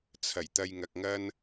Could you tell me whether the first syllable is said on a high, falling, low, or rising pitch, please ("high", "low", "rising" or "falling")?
low